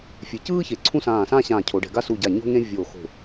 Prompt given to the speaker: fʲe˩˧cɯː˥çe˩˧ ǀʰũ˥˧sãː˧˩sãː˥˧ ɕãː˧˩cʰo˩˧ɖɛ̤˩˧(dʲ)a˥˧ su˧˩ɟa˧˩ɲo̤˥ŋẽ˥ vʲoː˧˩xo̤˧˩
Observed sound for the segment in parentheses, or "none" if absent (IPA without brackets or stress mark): ɡ